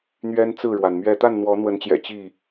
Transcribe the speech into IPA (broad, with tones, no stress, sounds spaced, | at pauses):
n̪ ɥ ɛ˦ n t͡s ɹ̩˥˨ ɻ w a˩ n m ɥ ɛ˥˨ t̪ a˥˨ n n̪ w ɔ˨˦ n̪ w ə˨˦ n t͡ɕ j ɛ̰˨˩ t͡ɕ i˥˨